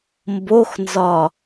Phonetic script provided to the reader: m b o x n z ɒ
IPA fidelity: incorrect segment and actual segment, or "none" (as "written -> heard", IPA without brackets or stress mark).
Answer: none